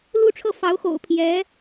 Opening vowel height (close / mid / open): close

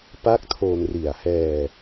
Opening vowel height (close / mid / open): open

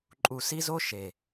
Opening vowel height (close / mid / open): close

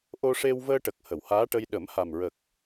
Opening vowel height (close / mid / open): mid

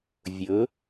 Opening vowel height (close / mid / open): mid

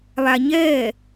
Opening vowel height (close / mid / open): open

